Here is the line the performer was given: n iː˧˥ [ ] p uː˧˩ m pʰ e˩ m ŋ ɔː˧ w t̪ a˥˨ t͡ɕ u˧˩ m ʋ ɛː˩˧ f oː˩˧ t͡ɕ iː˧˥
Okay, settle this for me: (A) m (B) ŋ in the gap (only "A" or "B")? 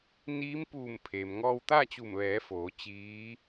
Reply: A